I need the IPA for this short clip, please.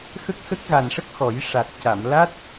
x ə˦˥ k̚ x ə˦˥ k̚ ɣ a˨˩ n ʂ ə˦˥ k̚ x ɔ˨˩˦ j ʂ a˨˩ t̚ c a˨˩˨ m l a˦˥ t̚

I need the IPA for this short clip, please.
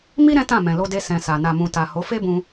m i˦ ɾ ɛ̃˦ t ã˦˨ m ɛ̃˨ l o˧ d e˧ s ɛ̃˨ s a˨ n a˨ m ũ˨ t a˨ h o˨˦ f e˦ b ũ˧

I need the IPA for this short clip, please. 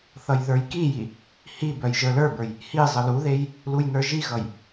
θ ʌ j ð ə˞ j k i j i | h i b œ j ʒ ə˞ l ə˞ b ə˞ j | h i zˤ ə l u ð e j | l u j n ə˞ ʒ i ɣ ʌ j

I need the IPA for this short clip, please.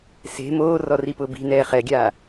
s e̤ m oː r ɔ r i p ʊː b i̤ n ɛː χ ɛ ɡʲ aː

